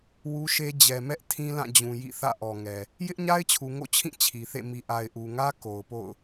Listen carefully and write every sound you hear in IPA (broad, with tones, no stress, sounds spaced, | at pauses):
w u˦ ʃ e˦ d͡ʑ ɛ˨ m ɛ˦ ʔ tʰ ĩ˦ l ã˦˨ d͡ʑ ũ˨ j ḭ˦˨ θ ä̰˦˨ ʔ ɔ˨ ŋ ɛ˨ | j ɪ˦ ʔ ɲ a˦ ɪ̯ t͡ɕʰ u˨ ŋ o̰˦˨ t͡ɕʰ ĩ˦˨ t͡ɕʰ i˨ θ ḛ˦˨ m i˨ ʔ a˨ ɪ̯ ʔ u˨ ŋ ä˦ k o˨ ʊ̯ p o̰˦˨ ʊ̯